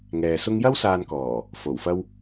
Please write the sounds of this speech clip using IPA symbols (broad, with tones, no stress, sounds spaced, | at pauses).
ŋ ɛː˨ s ʊ˥ ŋ j ɐ˥ w s aː˧ n k ɔː˨˩ | f o˨˩ w f ɐ˥ w